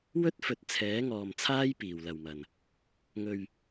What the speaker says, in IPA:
w ɵ˥ t̚ f ɵ˨˥ t̚ t͡sʰ ɛː˨˥ ŋ ɔː˨ m t͡sʰ aː˥ j p iː˨˩ w l ɐ˨ w m ɐ˨˩ n | ŋ ɵ˨ ɥ

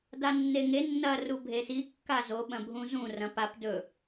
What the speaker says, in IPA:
d a nː e ŋ e nː ɐ r u bʱ e s i kː a z o ɓ ɐ̃ bʱ ũ z ũ r ɐ̃ p a p d ɵ

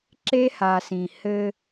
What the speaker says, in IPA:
ǁ e˦ h a˨ s ĩ˨ h ɘ˦

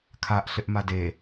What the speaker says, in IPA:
kʰ a ʔ ɬ ɪ ʔ m a d e

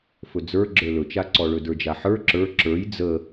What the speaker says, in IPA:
f ɵ d͡z ə˞ ɡ͡ǁ ə˞ l ɵ t͡ʃ a ǀ ɔ ɭ ɵ d ə˞ d͡ʒ a ħ ə˞ ǁ ə˞ ǁ ə˞ j d͡z ə

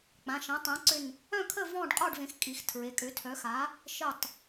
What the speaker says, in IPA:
k͡p ã˩˧˩ ʃ ɐ̃˩˥ tˤ œ̃˩˥ ǀ ʏ˧˩ n | œ̃˥˨ kʰ ə˥˨ v ɔ̃˥˨ ɖ qʼ ɔ˥˨ ɖ v ẽ˩˥ x kʼ i˩˧˩ x tʰ ɹ e˩˧˩ kʼ ʏ˩˥ tʰ œ˩˥ x a˩˥ | ʃ ə˧˩ tˤ

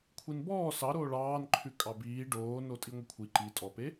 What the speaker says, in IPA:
kʷʰ i n b ɔː s ɑ ɾ oː ɭ ɑː n ǃʰ ʉ kʼ ɑ b iː ɖ oː n o tʼ i ŋʷ ə kʷʰ i ǃ i tʼ ɔ p e

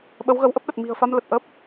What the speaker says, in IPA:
ɓ ə˨˦ w ɣ ə˨˦ w ʔ ə˦˥ p̚ ɗ ə˨˩ t̚ m i̤˨˩ ə̯ f a˧ m l ə˨˩ t̚ ʔ ə˦˥ p̚

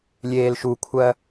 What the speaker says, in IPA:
lʲ eː l ʃ u kʷʰ ɜ

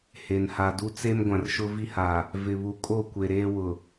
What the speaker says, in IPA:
h e˨ n h a˨ d u˦ t͡s e˦ m ɡʷ ã˨ r ʃ ʊ˦ v i˦ h a˨ | v ɪ˨ β u˨ kʼ o˦˨ kʷ e˨ ɾ eː˦ w ʊ˨

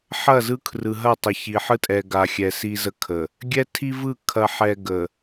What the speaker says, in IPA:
ħ ɐ˦˨ z ɯ˦ kʰ r ɯ˨ ɦ ɐ˦˨ tˤ ə˨ ç i˨ ħ ɯ˦ tʼ ɛ˨ ɡ a˨ xʲ ɛ˨ s i˦ z ə˦ kʰ ə˨ | ɡʲ ɛ˦ tʰ i˦ v ɯ˦˨ kʰ ɐ˨ ħ ɛ˨ ɡ ə˨

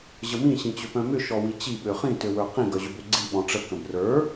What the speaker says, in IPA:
ʑ ə m ĩ ɕ ĩ t͡ɕ ʏ p œ̃ m ʏ ʃ ɔ w i t͡ɕ i ɓ ø χ ĩ t ø w ə˞ q ĩ ɡ œ ʑ ʏ b ø ɡ͡ǀ i ɓ ɔ̃ ʈ͡ʂ ə k ə̃ b r ə˞

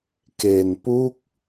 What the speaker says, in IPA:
k e˧ n p u˥˩ k̚

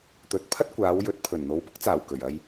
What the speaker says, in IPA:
t̪ ɵ˨˥ t̚ pʰ ɐ˥ t̚ kʷ aː˨˧ w j ɵ˨˥ t̚ pʰ ɵ˨˩ n n̪ o˨˧ w p ʊ˥ k̚ t͡s aː˨˩ w k ɵ˨˩ ɥ ɐ˧ j

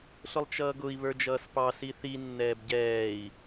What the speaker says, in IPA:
ɬ ʊ lˠ t͡ʃ ʌː ɡ ʊ i̯ β ə˞ d͡ʒ ʌː s p ɑ s i θ i nː ɛː b ɟ ɛː i̯

